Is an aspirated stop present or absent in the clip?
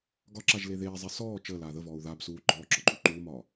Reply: absent